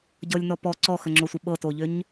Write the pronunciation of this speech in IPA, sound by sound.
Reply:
ɟ ɤ lʲ n ɔ p ɔ ǀ ɔ x ə ŋ͡ǁ o sʷ ə ɓ ɤ t o ʎ ʏ ɲ

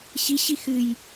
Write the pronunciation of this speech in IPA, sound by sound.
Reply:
ɕ i ɕ i x ɨ j

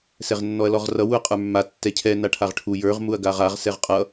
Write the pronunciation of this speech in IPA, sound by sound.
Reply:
s ɛ ʁ nː ɔ ɐ̯ l ɔ ʁ r ʌ w u ɐ̯ qʼ ə˞ mː a tː ɛ cʰ ɛ n a ʈʰ a ʁ ʈʰ u j ə˞ ʁ m u ɐ̯ ɡ a ʁ a ʁ s ɛ ʁ qʼ ʌ

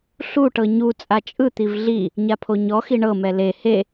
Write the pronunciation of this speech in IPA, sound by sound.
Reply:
ɬ u ʈ ɤ ɲ u t͡sʼ a t͡ʃʼ ɯ t̪ i v ɮ i | ɲ a pʰ o ɲ ɔ x i ɳ ɤ m ɛ l e h e

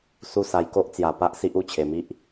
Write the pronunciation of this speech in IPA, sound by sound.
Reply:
s u˧ s a˨˩ j k o˦ ʔ t͡s j a˨˩ p a˦ ʔ s i˦ ʔ u˥˧ t͡ɕʰ e˨˩ m i˦ ʔ

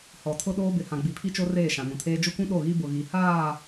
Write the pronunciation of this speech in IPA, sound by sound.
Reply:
h ɔ˨ tʰ ʊ˦ ɗ oː˦ b ɪ˨ h ã˨ ɡ͡b i˨ pʰ i˦ t͡ʃ o˦ r eː˦˨ ʃ ã˨ n ũ˨ tʰ eː˦ d͡ʒ ʊ˦ kʷ ũ˦ ɗ o˦˨ ɣ i˦ b ʊ˨ ɣ i˨ h aː˦˨

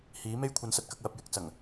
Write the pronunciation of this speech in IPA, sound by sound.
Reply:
h iː˨˥ m e˥ j kʷʰ ɐ˨˧ n s ɐ˨˥ t̚ k ɐ˧ k̚ w ɐ˧ p̚ j ɪ˨ k̚ t͡s ɐ˨˩ ŋ

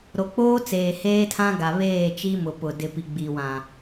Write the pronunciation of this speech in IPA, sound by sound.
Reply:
ɾ o˨ k͡p oː˦ t͡s eː˨ h eː˦ tʰ ã˦ ɡ a˨ β eː˦˨ t͡ʃ i˦ m ʊ˨ p ʊ˨ d ɪ˨ p i˨ ɡ͡b i˨ w ã˨

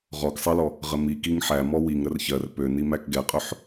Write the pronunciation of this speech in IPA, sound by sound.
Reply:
ʁ ɔ k sˤ ɛ l ɔ | ʁ ə m i k i ŋ ħ æ m ɔ w i ŋ ɾ ə r ç ɜ r p ø n i m æ k ɡ ɛ qʼ ø ħ

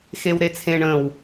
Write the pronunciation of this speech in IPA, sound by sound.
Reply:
x e w ɾ e t͡sʰ ẽ ɳ ə̃ː w

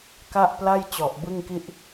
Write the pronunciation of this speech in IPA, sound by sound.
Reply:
k a˥˩ ʔ p l a˥˩ j t͡ɕ ɔ˨˩ ʔ b ɯ˥˩ ŋ k i˥˩ ʔ

